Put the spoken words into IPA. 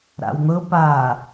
ɾ a̰ w n̪ ɤ p a

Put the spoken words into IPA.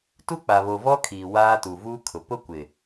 t u˦ k͡p a˨ β o˨ v ɔ˦ kʰ iː˨ w aː˦ t u˨ v uː˦ kʰ ʊ˨ p ʊ˦ kʷ ɪ˨

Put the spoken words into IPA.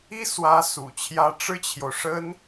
i˥ s w ä˧˥ s ṵ˨˩ t͡ɕʰ j ä˥ ʈ͡ʂ ɻ̩˥ t͡ɕʰ j o˨ ʊ̯ ʂ ə˥ n

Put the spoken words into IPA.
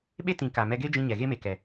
ɓ e˦ t ĩ˨ k a˨ m ɛ˧ ɡ e˦ d͡ʒ ĩ˧ ɲ ɛ˨ ɣ e˦ m e˨ k ɛ˨

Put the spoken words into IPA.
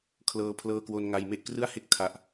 kʰ l ɤː˧ pʰ l ɤː˧ k w o˧ n ŋ a˧ j m e˥˩ ʔ k r ɯ˥˩ a̯ h e˥˩ k̚ tʰ a˨˩ ʔ

